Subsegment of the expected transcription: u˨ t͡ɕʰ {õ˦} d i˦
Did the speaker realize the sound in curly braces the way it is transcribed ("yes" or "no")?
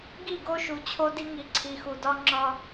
no